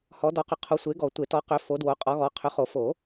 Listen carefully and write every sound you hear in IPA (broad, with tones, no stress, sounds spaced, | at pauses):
h ɔ˨˦ d ɔ˨˦ q ʏ˨˦ qʰ o˨˦ sʷ e˨˦ ɡ ɔ˨˩˦ tʷ e˨˩˦ t ɔ˨˦ q ʏ˨˦ f o˨˦ d w o˨˦ qʼ ɔ˨˦ ɣ ɔ˨˦ qʰ ʏ˨˦ χ o˨˩˦ f o˨˩˦